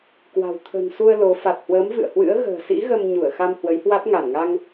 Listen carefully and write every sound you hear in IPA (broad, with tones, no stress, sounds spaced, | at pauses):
k w a̤˨˩ w t̪ʰ ə̤˨˩ n s u˧ ə̯ l o˨˦ f a˨˩ t̚ h w əː˨˦ m v ɨ̰˧˨ ə̯ h w ɨ̰˧˥ ə̯ ɣ ə̤ː˨˩ s ḭ˧˥ ɣ ə˧ m ɲ u˧˩ ə̯ x a˧ m h w ə˨˦ j h w a˦˥ t̚ ŋ a˧˩ n ŋ a˧ ŋ